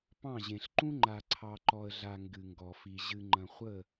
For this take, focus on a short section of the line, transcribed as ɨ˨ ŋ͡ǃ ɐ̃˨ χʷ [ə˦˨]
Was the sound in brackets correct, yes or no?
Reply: yes